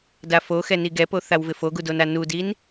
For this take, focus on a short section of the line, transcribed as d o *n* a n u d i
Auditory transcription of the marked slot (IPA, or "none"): n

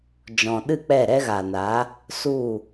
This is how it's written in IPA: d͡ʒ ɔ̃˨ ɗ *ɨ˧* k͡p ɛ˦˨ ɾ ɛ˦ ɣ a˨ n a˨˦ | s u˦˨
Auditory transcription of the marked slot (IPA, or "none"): ɨ˦˨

